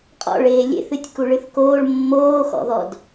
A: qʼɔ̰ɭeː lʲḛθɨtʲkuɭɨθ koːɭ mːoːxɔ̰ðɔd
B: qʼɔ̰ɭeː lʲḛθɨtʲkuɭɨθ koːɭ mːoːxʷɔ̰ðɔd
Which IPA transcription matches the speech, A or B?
A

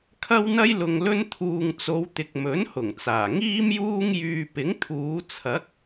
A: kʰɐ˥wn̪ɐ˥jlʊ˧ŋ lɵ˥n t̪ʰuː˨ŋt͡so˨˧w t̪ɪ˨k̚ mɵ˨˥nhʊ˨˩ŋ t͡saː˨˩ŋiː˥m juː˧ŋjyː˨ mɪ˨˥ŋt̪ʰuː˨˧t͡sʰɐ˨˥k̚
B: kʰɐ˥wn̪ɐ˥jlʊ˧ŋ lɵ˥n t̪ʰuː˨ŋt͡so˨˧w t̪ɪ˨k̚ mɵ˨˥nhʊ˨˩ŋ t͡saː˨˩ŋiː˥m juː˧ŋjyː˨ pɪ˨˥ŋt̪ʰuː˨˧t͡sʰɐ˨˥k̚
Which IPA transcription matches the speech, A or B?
B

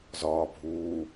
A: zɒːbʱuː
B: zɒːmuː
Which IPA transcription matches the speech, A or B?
A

